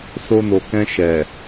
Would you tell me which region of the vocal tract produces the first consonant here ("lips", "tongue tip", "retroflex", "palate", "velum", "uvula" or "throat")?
tongue tip